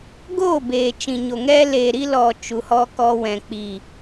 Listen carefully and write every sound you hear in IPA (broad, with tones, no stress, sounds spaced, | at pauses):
ɡ oː˦˨ b eː˨ t͡ʃ ĩ˨ ɲ o˨ ŋ ɛ˧ l eː˨ ɾ i˧ l ɔ˨ t͡ʃ u˨˦ h ɔ˦ k ɔ˧ w ɛ̃˨ k͡p i˨